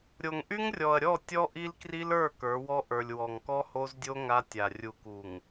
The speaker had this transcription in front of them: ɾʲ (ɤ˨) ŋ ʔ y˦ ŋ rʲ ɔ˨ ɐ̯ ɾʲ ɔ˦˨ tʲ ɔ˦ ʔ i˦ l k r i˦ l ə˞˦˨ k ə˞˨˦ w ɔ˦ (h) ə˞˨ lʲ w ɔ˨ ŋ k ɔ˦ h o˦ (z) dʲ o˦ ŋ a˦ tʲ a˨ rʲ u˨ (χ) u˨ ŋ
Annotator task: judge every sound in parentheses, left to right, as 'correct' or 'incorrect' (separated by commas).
incorrect, incorrect, correct, incorrect